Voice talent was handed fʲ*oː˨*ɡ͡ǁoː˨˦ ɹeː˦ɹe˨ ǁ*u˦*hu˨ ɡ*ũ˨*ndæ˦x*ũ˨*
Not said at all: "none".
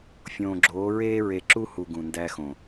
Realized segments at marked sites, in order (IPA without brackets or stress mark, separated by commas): õː˨, u˦, ũ˨, õ˨